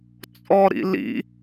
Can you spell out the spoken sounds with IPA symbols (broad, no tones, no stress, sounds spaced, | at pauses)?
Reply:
t͡sʼ ɔ ɾ ḭ l ḭ